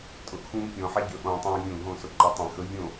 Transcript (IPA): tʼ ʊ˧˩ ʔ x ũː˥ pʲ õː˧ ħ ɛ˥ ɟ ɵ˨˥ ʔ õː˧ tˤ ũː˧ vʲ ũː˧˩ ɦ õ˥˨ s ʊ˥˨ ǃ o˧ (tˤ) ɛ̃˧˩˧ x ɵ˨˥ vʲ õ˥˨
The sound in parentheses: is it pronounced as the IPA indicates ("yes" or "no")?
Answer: yes